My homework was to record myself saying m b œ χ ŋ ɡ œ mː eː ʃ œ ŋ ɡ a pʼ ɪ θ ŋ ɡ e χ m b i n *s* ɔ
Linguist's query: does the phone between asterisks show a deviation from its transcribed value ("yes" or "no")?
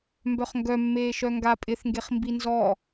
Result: yes